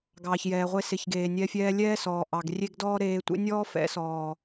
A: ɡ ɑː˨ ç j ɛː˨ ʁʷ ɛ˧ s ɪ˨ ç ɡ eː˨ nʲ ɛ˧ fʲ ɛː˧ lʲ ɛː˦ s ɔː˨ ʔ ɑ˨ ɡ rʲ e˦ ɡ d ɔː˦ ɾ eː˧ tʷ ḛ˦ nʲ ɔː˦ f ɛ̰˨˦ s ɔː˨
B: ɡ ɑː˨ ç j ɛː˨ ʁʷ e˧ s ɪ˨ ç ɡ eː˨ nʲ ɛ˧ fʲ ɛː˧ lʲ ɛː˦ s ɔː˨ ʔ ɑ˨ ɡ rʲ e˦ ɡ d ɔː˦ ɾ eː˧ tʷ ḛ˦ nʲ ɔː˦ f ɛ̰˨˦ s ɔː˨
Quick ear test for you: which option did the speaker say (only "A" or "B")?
B